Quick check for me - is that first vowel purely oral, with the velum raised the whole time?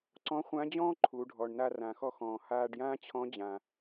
no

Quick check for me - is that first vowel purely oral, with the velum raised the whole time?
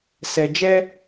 yes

